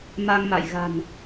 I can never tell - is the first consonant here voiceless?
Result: no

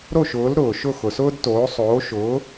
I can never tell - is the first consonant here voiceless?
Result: no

